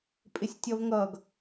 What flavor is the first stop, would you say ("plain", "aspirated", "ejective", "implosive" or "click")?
ejective